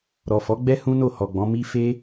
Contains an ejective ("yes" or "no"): no